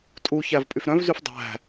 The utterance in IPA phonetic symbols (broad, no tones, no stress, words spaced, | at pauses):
tʼuçæv pʼyfɾœ̃vzyf dˤæ̤